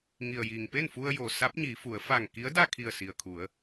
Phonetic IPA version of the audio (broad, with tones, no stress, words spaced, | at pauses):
ŋi˩ə̯jiː˩ŋpe˥˨n fu˧ə̯jo˩ sa˧˥p̚ɲiː˩˧fu˩˧ə̯ fa˧˩ŋki˧˥ə̯da˥˨ kʰi˧˩ə̯si˩ə̯kʰu˩˧ə̯